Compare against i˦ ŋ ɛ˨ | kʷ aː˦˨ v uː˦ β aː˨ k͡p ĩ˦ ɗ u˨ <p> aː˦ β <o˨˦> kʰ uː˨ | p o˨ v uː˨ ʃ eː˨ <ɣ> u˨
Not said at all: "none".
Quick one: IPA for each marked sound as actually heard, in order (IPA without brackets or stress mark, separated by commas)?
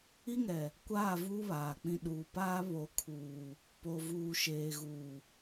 p, o˨˦, ɣ